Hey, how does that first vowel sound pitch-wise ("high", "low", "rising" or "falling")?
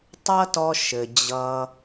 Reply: high